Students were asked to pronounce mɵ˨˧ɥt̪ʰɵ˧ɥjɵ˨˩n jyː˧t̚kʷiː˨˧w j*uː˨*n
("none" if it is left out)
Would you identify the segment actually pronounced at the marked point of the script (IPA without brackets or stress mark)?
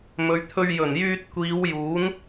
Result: uː˨˥